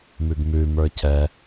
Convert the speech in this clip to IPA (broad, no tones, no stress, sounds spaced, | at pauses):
m ʉ ɡ m ʉ m ə˞ cʰ ɛ